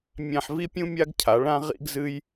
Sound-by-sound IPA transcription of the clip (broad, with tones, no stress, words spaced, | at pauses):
mʲã˧ħvi˦pʲũ˦ mʲa˦ɡcʰa˨˦ɭã˦ ʁḭ˦ɡzɨ˦j